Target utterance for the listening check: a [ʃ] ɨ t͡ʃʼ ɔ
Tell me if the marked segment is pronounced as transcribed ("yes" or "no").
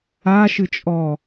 yes